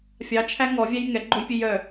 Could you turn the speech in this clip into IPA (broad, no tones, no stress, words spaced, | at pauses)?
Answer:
fʲɑt͡ʃʰæ ŋɔvʲæj ŋɛɡ͡ǃojpʲøj œ